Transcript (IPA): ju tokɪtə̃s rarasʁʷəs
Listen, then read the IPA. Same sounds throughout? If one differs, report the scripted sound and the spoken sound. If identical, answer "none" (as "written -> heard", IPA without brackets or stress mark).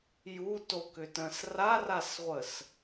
ɪ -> ʏ